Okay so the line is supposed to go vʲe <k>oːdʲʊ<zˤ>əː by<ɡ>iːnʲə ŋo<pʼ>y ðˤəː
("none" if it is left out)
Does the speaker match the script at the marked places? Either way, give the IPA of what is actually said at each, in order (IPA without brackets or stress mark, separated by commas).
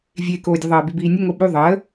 k, ðˤ, b, ɓ